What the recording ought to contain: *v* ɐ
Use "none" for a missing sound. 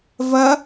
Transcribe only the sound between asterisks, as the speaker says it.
v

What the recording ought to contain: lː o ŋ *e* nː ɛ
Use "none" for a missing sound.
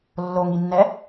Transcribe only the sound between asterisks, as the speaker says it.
i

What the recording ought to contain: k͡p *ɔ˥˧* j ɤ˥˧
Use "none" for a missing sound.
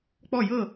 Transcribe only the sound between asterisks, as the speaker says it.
ɔ˥˧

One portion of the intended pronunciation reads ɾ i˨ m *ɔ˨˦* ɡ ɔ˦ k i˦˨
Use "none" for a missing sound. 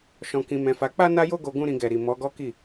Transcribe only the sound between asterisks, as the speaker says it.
ɔ˨˦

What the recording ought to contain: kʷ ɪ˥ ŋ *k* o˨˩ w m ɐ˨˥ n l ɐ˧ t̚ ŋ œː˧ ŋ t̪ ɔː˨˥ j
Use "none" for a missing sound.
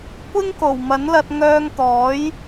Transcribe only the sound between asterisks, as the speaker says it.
k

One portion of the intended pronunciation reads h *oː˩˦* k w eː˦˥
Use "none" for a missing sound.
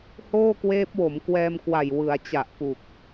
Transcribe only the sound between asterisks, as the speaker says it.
oː˥˩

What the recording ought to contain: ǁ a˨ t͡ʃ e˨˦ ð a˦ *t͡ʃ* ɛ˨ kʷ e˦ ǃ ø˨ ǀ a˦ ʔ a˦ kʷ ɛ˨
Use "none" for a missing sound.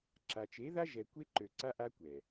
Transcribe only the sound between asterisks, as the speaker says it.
ʒ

